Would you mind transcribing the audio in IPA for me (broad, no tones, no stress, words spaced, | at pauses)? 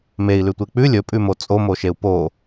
mei̯lʉtʷe k͡pʉ lʲɵpʼʉmo t͡sʼomoʃeu̯ po